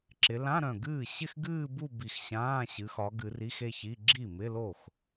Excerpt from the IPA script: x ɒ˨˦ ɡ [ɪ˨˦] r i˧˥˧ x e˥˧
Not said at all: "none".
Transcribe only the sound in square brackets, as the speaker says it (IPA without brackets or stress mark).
ɨ˨˦